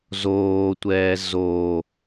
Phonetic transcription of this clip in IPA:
z oː tʷ ɛː z o

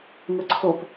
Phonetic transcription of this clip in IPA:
ŋ ə ǀʰ o p

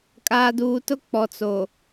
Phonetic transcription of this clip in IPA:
kʼ aː˦ d uː˦ t ʊ˦ k͡p ɔ˨ t͡s o˨

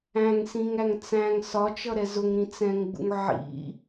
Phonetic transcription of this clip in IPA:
æ̃ ŋ s ĩ ŋ æ ŋ t͡s æ̃ ŋ s ɒ t͡ʃ ʌ ɾ ɛ z ʊ ŋ ɾ ĩ t͡s ɛ̃ ŋ ɡ͡b ṵ ŋ ʕ ḭ

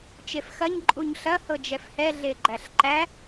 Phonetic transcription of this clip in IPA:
t͡ʃ e f x ɐ ɲ ǃʼ u ɲ ɬ ɐ h ɤ d͡ʒ ɛ f h ɛ ɮ e ɡ͡ǃ æ ɬ ǃ æ

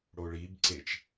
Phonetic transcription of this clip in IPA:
ɽ o ɭ i b ǀ e t͡ʃ

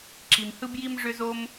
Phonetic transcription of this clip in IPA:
ǁ i˩ m h ɯ˥ b j i˥ m ʐ ʏ˥ z o˥ m

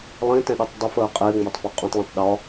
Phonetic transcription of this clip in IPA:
lˠ ĩ t ɛ̃ ɗ u tˤ dˤ ɪ f əː qʼ ɪː ŋ͡m æ tˤ f ɒ qʼ ũ tˤ l ə̃ tˤ ɗ ɒ

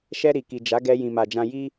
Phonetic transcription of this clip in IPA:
ʃ ɛ˧ ɾ i˨ k i˨ d͡ʒ a˨˦ ɡ ɛ˧ j ĩ˨ m a˨ d͡ʒ ã˧ j i˦

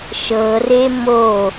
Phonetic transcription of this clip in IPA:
ʃ ɤ r e m o

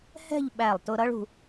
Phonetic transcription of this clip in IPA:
h ɛ̤˥˧ ʎ ɓ æ˧˩ lˠ t ʊ˧ ɾ ʌ˥ ɭ ṳ˧

